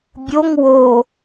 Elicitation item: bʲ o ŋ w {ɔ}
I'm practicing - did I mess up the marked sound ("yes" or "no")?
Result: yes